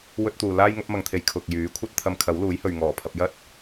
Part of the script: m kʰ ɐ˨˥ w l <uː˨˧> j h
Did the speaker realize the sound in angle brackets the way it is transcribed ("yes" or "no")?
no